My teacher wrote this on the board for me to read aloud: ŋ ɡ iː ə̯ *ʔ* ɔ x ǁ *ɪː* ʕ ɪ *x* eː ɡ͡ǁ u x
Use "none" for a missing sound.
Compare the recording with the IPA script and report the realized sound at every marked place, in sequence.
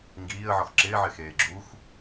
ʕ, ɪː, x

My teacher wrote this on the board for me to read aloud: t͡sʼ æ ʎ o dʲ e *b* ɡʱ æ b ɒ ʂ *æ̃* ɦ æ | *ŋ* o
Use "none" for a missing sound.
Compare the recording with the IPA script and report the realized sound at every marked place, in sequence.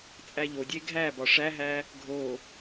none, æ, ɡʱ

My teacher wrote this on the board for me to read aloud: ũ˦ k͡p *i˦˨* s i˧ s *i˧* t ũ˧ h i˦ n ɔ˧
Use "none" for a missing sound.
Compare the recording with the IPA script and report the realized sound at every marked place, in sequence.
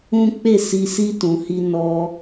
e˦˨, i˦

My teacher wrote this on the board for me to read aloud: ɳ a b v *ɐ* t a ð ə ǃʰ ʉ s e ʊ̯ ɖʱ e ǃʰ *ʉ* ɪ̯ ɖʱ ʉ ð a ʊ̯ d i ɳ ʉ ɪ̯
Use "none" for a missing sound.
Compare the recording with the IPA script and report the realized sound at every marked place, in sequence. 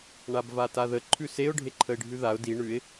a, ə

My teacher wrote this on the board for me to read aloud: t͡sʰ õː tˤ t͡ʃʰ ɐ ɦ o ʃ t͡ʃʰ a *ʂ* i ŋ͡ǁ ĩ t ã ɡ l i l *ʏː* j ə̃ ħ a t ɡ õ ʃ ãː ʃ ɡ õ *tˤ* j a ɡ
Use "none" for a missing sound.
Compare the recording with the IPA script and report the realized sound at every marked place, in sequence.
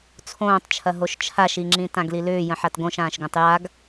ʃ, ʏː, tˤ

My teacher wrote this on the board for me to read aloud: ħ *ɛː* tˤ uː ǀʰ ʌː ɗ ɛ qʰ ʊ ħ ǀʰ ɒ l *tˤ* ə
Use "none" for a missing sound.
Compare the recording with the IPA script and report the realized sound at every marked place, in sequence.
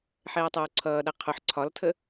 ɛː, tʰ

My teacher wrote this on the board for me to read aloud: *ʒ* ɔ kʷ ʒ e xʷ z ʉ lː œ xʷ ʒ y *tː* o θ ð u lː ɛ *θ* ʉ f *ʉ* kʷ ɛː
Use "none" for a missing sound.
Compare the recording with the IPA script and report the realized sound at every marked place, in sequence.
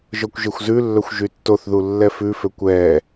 ʒ, tː, f, ø

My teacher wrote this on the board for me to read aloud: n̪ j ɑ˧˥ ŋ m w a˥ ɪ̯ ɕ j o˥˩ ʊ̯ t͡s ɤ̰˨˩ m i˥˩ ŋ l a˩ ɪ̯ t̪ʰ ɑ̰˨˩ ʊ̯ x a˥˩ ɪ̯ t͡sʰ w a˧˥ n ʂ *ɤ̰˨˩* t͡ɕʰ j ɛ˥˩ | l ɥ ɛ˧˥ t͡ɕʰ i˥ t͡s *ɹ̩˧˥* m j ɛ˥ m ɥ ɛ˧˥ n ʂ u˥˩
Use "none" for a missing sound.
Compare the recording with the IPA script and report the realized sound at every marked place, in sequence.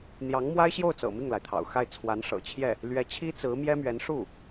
ɤ̰˨˩, ɹ̩˧˥

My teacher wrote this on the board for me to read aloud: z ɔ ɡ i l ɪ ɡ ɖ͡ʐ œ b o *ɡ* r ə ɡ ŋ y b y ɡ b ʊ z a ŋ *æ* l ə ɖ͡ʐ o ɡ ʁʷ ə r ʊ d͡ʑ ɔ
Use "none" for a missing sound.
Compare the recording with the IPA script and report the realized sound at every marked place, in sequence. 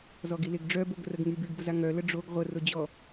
ɡ, œ

